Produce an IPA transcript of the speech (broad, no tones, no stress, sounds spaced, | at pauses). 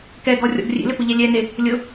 k ɛ ɡ ɔ rʲ ɔ̰ ɡ rʲ ḛ l ɪ p ʊ ʎ ɛ lʲ ɛ n e | lʲ ʊ